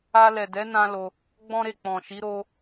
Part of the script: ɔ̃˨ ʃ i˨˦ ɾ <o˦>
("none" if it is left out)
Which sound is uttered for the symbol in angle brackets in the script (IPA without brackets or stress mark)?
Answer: o˦